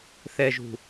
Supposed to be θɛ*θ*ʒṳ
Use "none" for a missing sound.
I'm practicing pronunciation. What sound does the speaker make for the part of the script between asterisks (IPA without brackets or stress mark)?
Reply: none